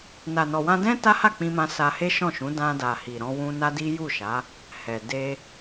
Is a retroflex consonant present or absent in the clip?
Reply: absent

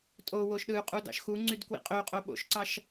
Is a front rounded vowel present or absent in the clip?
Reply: present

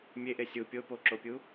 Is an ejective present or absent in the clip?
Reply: absent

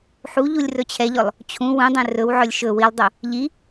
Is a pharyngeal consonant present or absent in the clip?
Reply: present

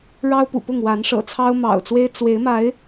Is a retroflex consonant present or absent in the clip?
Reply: present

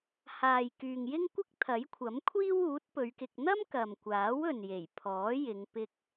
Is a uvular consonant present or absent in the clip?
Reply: absent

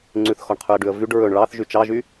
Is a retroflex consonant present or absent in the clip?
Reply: present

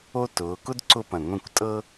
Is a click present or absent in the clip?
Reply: present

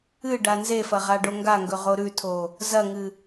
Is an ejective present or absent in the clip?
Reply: absent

